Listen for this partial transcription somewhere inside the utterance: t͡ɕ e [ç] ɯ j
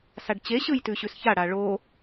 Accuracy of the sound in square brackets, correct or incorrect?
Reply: incorrect